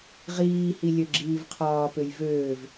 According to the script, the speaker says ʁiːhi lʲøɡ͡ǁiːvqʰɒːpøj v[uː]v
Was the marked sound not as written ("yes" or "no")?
yes